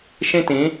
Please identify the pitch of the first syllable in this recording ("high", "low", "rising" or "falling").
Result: high